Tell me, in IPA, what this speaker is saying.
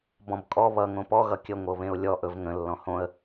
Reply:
bɔ̃bkʼɔ βʌ ŋõpɔ ɣʌkʲə ŋʷɤβẽʊ̯lʲɔ ʔɵvŋə̃ lːɔ̃hõə̯

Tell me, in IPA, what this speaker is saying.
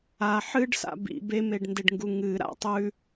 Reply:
a ħɨɖsa̰ bḭ bemeɖndeɖŋɡu ŋɨɾa̰ tˤʉ

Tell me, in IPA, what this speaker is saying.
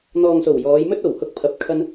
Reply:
n̪ɔː˨ŋso˨˩w jɔː˨˧jmɵ˥t̚ o˨˩whʊ˧k̚ pʰɐ˨p̚kʰɐ˧n

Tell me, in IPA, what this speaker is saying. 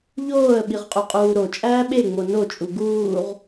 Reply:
ʎoːə̯ɓiʁqʼuqʼuː ɾot͡ʃʼæː ɓeŋ͡mo not͡ʃʼu ɡuːʁ

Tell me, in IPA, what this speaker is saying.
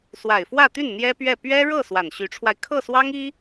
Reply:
swa˨˩ɪ̯fwä˥˧t̪y˥˩n n̪jɛ˥pɥɛ˥˩ pɥɛ˥ ɻɤ˥˩ swa˨˩nɕy˧˥ʈ͡ʂʰwa˧ɪ̯ kʰɤ˥˩swɑ˥ŋi˥

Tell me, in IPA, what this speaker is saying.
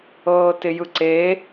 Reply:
ɤːtɪjɯǀe

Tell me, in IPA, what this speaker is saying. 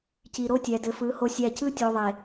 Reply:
ci˨ɾo˦tʲɛ˨ dɘ˨fɯ˨˦ ho˦sʲæ˦˨ cɯ˦tʲo˨ ðˤe˨

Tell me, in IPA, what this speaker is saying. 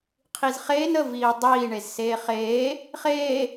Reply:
qʰizχeːn ə viːdˤiː ɳezseːχeː | χeː

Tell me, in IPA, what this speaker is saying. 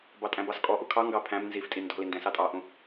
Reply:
bɑtʼæ̃bɑskʼɔ ʔukʰɑ ŋɡɑpʰæ̃m nziftʼi ndɔ̤lindɛ̃ sɑtʼɑʔũ

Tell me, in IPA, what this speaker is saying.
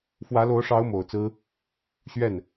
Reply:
fwä˧˥lo˧˥ʊ̯ʂɑ˧˥ʊ̯ mo˨˩ʊ̯t͡sɹ̩˥ | ɕɥɛ˥˩n

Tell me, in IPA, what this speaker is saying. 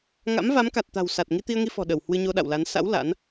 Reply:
ŋa̰˧˥mva˨˦mka˨˩t̚t̪a̤˨˩w sa˨˩t̚ ŋi˧t̪i˧ə̯ŋi˧fɔ̤˨˩ ɗə˧˩w hwɨ˧ɲo˧ ɗa̰˧˨wla˨˦n sa̰˧˥w la̰˧˥n

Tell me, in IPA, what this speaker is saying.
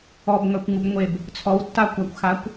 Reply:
ɔbŋœkʷŋubŋʷeb | t͡sʰɔwtːakʷakʷxakʷ

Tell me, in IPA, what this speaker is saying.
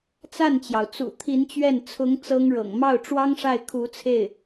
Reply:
t͡sa˥˩nt͡ɕjɑ˩ʊ̯t͡sṵ˨˩ t̪ʰi˧˥nt͡ɕɥɛ˥˩n t͡sʰʊ˧˥ŋ t͡sɤ˥ŋɻɤ̰˨˩ŋ mɑ˥˩ʊ̯ʈ͡ʂwɑ˥ŋʂa˥˩ɪ̯ kʰu˧˥t͡sʰe˥˩ɪ̯

